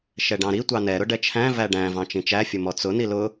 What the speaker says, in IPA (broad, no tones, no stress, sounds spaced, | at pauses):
ʃ ɛ ɖ ɑ̃ ɾ i tʷ ɑ n ɛ ɾ ʊ ɖ ɛ t͡ʃʰ æ̃ v æ ɖ æ̃ v ɑ̃ t͡ʃ ĩ t͡ʃ æ fʲ ʊ m ɔ t͡s ʊ n i l ʊ